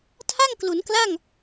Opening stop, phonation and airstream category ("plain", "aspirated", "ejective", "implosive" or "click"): aspirated